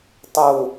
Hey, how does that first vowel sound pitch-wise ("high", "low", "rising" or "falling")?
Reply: low